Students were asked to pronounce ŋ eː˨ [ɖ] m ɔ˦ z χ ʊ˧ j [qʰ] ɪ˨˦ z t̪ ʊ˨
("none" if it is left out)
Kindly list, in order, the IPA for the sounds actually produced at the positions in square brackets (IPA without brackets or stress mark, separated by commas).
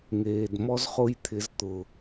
d, t̪ʰ